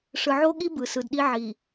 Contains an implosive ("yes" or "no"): yes